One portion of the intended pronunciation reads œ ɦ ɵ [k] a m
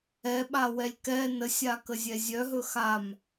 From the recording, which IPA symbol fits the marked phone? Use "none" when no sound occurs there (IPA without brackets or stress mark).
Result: x